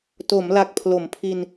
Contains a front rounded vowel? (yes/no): no